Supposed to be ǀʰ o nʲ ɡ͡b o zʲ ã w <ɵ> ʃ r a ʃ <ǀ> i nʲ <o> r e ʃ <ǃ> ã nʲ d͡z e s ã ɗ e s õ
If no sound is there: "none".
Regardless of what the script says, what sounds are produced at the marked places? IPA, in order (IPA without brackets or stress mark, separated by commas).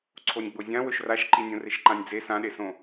ɵ, ǃ, õ, ǃ